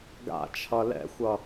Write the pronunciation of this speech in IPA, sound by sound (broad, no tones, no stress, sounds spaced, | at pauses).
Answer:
ɡ a̰ t͡ʃʰ ʌ l ɛ̰ xʷ ʌ